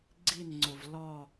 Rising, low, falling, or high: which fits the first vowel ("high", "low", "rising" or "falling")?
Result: falling